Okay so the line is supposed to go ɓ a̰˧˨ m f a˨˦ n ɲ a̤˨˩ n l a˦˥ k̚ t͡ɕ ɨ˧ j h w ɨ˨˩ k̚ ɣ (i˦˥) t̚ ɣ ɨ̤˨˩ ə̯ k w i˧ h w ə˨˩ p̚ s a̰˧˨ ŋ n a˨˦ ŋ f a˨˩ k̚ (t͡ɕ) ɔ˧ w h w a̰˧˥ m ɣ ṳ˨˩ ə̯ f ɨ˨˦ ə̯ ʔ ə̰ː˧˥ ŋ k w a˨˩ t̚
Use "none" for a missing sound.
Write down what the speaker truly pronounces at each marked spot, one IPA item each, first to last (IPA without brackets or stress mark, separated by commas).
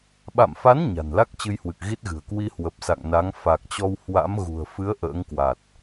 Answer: i˦˥, t͡ɕ